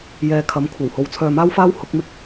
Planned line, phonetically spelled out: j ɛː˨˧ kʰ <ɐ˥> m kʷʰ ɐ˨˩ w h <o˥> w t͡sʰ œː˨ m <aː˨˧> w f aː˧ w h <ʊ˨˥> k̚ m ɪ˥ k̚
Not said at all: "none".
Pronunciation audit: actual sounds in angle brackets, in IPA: ɐ˨˥, o˨, aː˧, ʊ˨˥

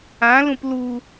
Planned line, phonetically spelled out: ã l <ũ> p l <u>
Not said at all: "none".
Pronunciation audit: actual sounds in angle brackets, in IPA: ũ, u

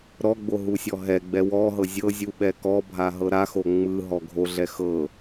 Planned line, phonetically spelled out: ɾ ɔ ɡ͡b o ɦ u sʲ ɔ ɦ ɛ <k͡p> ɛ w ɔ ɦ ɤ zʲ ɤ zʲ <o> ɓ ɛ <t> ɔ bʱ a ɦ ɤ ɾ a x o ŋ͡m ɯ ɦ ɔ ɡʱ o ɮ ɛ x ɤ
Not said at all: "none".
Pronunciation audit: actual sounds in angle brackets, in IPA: ɡ͡b, u, k

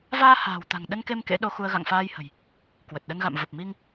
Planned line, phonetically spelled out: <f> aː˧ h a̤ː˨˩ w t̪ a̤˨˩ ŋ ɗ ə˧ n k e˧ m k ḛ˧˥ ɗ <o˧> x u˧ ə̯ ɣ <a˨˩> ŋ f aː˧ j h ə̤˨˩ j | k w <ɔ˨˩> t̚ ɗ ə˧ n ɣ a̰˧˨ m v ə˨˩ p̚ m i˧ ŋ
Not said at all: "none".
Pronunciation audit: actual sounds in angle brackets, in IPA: v, o˧, a̰˧˨, ə˨˩

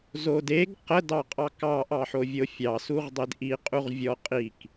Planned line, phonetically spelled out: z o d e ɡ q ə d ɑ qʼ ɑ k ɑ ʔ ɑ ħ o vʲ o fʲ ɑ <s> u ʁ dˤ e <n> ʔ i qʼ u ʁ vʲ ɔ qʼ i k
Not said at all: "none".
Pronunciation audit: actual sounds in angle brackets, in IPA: s, d

